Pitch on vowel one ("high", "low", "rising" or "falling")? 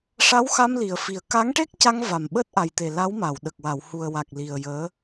rising